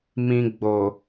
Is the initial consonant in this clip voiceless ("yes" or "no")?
no